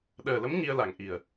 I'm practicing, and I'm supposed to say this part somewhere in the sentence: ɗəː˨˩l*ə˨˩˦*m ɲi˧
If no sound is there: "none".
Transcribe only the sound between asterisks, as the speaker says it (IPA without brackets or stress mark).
ə˧˥